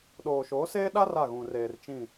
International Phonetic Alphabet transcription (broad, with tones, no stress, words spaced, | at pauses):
ɗoː˨ʃoː˨˦seː˦ɗa˦ ra˦˨ɣũ˨reː˨r t͡ʃĩ˦˨